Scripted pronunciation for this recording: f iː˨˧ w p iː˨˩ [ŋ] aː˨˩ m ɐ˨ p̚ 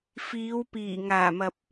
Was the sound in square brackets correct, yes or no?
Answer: yes